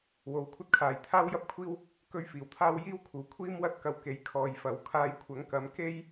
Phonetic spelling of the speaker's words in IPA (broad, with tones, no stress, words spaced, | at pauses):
wo˨˧wkʷʰɐ˥t̚kʰaː˨˧j t̪ʰaː˥wjɐ˥p̚kʷʰiː˥w | kɵ˧ɥ fiː˨˩wt̪ʰaː˥w jiː˥wkʰuː˨˩ kʷʰiː˥mwɐ˥t̚kɐ˧w ke˨˥jkʰɔː˨jfɐ˨˥w kʰaː˧jkʷʰɐ˨˥ŋkɐ˨˥m ke˥j